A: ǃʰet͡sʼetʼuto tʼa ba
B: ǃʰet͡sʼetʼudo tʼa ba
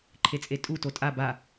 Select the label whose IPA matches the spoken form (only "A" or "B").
A